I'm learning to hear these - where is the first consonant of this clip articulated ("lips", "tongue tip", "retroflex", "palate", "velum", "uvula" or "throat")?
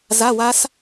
tongue tip